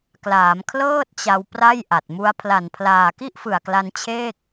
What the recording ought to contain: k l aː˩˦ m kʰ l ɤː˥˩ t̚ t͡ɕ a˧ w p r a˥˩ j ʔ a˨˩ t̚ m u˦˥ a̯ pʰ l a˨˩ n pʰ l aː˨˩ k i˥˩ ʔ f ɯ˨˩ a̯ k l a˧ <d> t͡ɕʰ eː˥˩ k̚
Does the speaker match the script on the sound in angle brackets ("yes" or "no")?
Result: no